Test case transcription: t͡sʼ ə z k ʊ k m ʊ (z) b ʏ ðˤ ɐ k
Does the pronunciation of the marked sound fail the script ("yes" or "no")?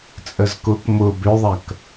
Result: yes